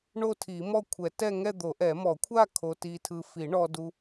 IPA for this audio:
ɳo˥˧tʰi˨˩˦mɔ˥˧ kʷʰɛ˨˩˦tɛ˥˧ ŋɛ˥˧d̪o˨˩˦ʔɛ˨˩˦ mɔ˨˩˦kʷʰa˥˧ kʰo˧ti˧tʰɯ˧ fi˨˩˦ɳɔ˧du˧

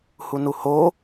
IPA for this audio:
hunuho

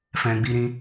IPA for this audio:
fɛ̃˧ ɡ͡bi˦ɾĩ˦

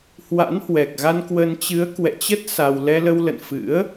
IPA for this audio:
hwa̰˧˥nhwɛ˨˩k̚ɣa˧nkwə˧n t͡ɕɨ˨˦ə̯kwɛ̰˧˨t͡ɕə˦˥t̚ sa˧w lɛ˧lə˧wlə̰˧˨n fɨ̰˧˥ə̯

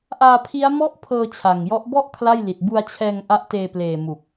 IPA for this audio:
ʔaː˧pʰi˦˥a̯mɔ˥˩ʔpʰɤː˧ t͡ɕʰa˨˩ŋjɔ˦˥ʔ bɔ˥˩ʔ kʰla˥˩jli˨˩t̚ bu˧a̯t͡ɕʰɛː˧ŋ ʔa˦˥ʔteː˧ pleː˨˩ mu˨˩k̚

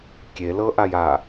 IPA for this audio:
kʲelɤʔaj a

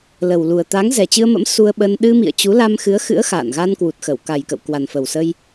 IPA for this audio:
lə˨˩wlu˨˩ə̯ t̪a˨˦ŋzɛ˨˩t͡ɕɨ˧ə̯mə̰˧˥m su˧ə̯ɓə˧n ɗɨ˧mḭ˧˨ə̯ t͡ɕu˨˦la˧mxɨ˨˦ə̯ xɨ̰˧˥ə̯xa̰ː˧˨nɣa˧n kwu˨˩t̚xə˧˩wka˨˩jkə̰˧˨w kwa˨˩nfə˨˩wsə˧j

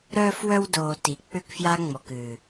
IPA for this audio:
ɾœː˧fwœ˧wdoː˨ ti˨˦k͡pʏ˦kfja˦ ŋ͡mɔ˨kɨː˨

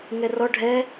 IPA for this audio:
ŋɛrɔ ɖʱɛ

